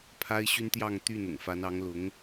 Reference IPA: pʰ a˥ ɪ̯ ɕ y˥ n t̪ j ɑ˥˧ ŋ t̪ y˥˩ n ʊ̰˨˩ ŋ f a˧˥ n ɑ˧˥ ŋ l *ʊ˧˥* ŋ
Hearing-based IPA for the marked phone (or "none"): ʊ˧˥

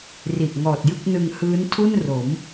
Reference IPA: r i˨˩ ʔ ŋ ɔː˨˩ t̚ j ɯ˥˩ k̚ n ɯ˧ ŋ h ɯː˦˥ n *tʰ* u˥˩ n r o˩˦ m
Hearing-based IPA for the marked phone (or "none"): tʰ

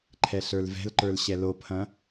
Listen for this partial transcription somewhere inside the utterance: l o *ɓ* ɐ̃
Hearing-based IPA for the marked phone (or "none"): pʰ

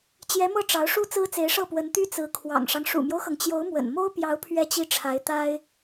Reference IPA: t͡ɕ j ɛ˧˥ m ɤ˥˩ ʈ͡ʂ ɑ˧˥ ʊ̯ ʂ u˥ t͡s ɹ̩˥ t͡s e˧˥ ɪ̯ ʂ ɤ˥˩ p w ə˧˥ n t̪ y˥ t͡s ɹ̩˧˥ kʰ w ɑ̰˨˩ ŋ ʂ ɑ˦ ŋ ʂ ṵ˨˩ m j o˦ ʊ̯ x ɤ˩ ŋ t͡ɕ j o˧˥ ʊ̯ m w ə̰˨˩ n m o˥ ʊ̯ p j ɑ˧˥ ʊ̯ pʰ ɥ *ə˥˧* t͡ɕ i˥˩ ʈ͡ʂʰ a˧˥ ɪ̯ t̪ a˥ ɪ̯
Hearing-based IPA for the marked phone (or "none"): ɛ˥˧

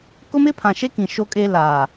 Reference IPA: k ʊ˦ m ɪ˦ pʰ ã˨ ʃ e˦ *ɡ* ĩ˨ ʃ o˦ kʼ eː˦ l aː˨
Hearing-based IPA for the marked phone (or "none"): k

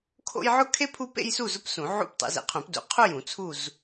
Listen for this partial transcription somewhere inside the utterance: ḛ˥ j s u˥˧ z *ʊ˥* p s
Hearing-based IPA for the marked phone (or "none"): ʊ˥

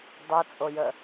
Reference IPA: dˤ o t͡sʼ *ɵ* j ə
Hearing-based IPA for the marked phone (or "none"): o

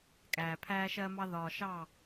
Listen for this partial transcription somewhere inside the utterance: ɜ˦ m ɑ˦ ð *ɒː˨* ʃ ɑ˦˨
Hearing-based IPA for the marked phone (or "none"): ɒː˨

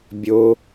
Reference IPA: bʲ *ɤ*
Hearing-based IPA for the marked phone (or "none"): o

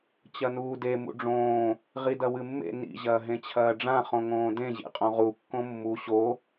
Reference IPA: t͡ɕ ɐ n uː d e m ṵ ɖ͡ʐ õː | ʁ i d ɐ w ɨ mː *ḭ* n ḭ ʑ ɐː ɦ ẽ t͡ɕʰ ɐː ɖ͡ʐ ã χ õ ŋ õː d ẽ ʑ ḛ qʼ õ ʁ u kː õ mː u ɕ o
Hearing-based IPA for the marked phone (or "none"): ḛ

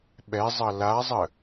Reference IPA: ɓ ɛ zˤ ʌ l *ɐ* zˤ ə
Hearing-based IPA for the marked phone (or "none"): a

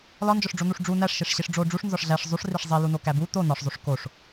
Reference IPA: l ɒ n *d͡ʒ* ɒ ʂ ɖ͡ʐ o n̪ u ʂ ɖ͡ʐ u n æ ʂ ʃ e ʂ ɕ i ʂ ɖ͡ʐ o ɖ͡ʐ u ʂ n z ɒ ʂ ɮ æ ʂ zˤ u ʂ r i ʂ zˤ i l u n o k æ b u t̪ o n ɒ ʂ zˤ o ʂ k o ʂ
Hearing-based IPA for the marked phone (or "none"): d͡ʒ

